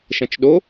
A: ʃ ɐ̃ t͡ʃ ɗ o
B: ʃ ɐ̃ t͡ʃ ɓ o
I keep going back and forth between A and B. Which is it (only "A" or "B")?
A